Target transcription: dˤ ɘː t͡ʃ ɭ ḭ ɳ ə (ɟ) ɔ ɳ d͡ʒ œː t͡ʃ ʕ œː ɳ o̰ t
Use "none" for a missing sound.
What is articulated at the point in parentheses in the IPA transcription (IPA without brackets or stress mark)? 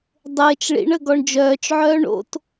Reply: ɡ